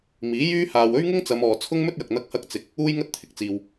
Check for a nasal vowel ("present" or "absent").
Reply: absent